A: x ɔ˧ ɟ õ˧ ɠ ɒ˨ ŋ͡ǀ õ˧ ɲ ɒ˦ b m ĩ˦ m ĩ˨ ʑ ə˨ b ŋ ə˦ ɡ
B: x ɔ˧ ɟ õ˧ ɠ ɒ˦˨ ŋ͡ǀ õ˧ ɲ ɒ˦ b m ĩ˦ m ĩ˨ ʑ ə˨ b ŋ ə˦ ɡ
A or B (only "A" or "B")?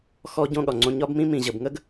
A